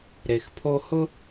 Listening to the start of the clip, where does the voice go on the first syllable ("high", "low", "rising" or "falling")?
low